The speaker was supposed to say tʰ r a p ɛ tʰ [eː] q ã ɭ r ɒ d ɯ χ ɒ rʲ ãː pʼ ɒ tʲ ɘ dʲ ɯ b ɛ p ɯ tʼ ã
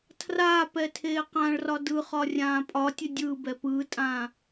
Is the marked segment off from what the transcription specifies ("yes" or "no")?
no